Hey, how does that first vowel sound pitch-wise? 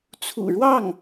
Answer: low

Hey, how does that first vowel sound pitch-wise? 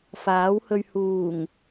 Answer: rising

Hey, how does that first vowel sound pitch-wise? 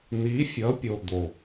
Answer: rising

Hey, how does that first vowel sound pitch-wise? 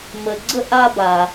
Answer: low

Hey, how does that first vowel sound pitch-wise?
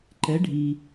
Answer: rising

